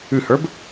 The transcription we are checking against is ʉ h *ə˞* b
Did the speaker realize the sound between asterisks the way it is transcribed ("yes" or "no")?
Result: yes